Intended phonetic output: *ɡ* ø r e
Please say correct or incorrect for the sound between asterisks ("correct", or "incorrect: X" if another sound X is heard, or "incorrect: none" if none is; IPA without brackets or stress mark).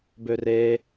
incorrect: b